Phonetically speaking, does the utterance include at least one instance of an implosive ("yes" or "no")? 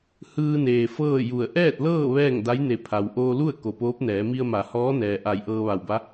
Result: no